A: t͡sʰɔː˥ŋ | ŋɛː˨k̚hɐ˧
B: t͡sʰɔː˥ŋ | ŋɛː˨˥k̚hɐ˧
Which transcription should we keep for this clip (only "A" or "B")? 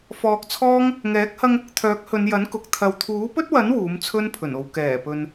B